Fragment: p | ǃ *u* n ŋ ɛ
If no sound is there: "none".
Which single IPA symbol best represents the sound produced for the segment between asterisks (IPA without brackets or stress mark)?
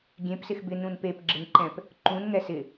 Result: ũ